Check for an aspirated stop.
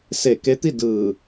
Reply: absent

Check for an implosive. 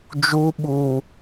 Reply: present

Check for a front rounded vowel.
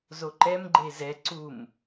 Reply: absent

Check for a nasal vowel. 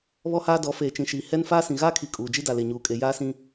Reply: present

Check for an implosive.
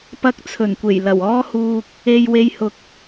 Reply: absent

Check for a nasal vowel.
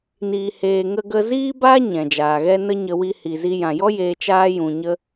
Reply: present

